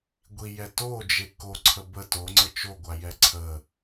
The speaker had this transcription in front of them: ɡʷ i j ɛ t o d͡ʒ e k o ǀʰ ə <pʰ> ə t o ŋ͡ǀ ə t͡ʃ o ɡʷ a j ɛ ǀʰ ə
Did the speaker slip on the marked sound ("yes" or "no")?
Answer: yes